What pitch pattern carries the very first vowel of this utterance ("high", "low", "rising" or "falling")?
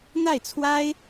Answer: falling